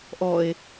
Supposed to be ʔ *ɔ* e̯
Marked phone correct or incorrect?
correct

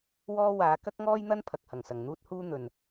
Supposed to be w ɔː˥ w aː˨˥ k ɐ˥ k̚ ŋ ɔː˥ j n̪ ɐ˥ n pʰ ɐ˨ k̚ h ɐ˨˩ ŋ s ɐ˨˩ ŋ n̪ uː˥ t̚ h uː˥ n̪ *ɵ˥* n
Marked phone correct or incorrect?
incorrect: ɵ˨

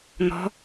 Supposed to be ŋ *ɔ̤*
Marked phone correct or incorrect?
correct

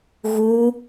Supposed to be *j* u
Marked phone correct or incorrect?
incorrect: ɣ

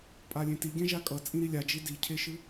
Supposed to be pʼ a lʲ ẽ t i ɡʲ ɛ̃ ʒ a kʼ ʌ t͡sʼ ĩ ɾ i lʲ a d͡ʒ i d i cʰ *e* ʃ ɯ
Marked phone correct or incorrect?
correct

